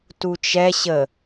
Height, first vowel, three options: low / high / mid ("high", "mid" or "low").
high